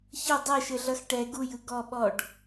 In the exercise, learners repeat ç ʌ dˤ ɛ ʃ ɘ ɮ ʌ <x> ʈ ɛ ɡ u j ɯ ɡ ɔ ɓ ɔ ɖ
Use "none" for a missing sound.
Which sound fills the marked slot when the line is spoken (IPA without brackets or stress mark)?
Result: x